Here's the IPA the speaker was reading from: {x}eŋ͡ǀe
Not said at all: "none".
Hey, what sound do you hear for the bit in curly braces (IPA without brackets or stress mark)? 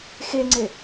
x